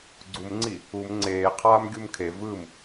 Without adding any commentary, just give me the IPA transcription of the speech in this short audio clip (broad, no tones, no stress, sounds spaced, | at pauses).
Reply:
ɡ͡ǀ u m ŋ͡ǀ i | u m ŋ͡ǀ eː qʰ aː m ɡʲ u m kʰ e v ɯ m